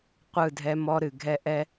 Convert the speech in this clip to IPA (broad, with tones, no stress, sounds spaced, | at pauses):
qʷ ɯ˦˨ dʱ ɛ˦ m ɔ˦ ɾ ɨ˨ ɡʱ ɛ˦ ʔ ɛ˦